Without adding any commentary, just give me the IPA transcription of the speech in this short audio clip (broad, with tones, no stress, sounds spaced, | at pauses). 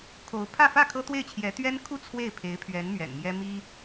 kʰ o˧˥ ʊ̯ pʰ ä˥˧ f ä˥˩ kʰ ɤ˥ t̪ w e˥˩ ɪ̯ t͡ɕʰ j ɛ˧˥ t̪ ɥ ɛ˥ n kʰ u˥˧ t͡sʰ w e˥˩ ɪ̯ pʰ e˧˥ ɪ̯ pʰ ɥ ɛ˧˥ n m ɥ ɛ̰˨˩ n m j ɛ˥ m i˥